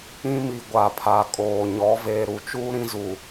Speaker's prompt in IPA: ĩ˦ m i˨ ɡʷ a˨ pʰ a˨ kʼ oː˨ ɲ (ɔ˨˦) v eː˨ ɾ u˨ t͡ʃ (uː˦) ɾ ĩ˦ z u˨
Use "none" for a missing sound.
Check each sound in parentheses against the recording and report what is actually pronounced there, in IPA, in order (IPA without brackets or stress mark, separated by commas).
ɔ˨˦, uː˦